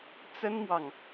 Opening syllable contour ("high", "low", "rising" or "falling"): high